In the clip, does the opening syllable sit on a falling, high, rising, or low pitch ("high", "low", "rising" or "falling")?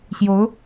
rising